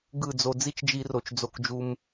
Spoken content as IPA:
ɡ ɯ˦˨ d͡z o˧ d͡z i˦ t͡ʃ d͡ʒ i˧ r o˨ t͡ʃ d͡z o˧ k d͡ʒ u˧ m

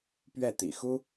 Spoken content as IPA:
p ɥ ɛ˥˩ t̪ ḭ˨˩ x u˥

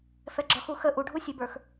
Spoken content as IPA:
f ɛ ɡ͡ǁ ɒ x u x ə ʔ u ɖʱ u sʲ ɛ b ə˞ x

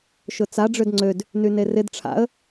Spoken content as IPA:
ʃ ʊ t͡s a ɖ͡ʐ ø d ŋ͡ǀ ø d | n y n e r ɪ d ʈ͡ʂʰ a̰ ə̯

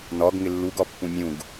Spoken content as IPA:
n ɒ ɡ ŋ ɪ lː u ɡ ɒ pː ũ mʲ ũ ɡ

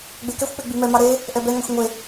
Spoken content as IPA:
ɡ͡b e k ɛ xʷ k͡p e ɡ͡b i m ɛ m ɑ ɾ e | ʔ ɛ b ɛ ŋ ɑ xʷ ŋʷ e

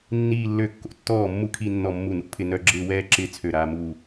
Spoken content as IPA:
nː iː˥˧ lː ø˥˧ kː o̰˥˩ tː ɔː˥˩ mː u˥˩ kʰ i˥˧ nː ɔ˥˩ mː u˥˩ n ṵ˥˧ pʰ ɪ˥˧ n œ˥˧ ɡ͡ǁ ɪː˥˧ w ɛː˥˧ ǁ ɪː˥˧ t͡sʰ ø˥˩ ɾ aː˥˧ m uː˥˧

